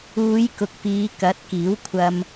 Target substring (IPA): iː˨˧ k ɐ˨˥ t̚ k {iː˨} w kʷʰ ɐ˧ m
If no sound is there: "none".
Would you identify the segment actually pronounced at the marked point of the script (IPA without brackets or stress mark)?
iː˨˥